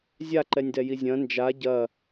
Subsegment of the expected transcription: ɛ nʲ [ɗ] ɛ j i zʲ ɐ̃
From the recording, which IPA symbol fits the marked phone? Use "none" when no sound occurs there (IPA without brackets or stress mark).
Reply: d